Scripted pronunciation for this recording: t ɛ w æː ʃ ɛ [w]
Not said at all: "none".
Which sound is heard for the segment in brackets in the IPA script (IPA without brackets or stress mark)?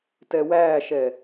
none